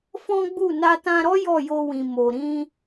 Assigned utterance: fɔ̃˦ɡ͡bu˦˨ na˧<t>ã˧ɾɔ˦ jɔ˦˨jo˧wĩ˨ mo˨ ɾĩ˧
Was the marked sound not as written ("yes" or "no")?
no